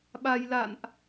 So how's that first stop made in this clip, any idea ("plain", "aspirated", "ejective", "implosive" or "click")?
implosive